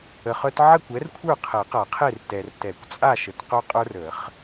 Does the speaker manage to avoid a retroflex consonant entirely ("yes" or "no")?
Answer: yes